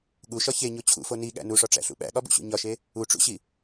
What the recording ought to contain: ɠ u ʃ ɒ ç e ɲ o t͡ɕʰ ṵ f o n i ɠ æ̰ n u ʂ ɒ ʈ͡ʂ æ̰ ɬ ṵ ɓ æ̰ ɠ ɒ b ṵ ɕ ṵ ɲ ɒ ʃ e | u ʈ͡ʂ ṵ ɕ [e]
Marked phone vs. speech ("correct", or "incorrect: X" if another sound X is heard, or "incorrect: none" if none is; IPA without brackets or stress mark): incorrect: i